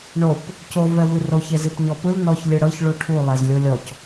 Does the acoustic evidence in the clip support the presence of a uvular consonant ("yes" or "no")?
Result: no